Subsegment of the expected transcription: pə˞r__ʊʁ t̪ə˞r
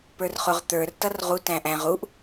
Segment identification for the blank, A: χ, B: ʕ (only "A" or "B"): A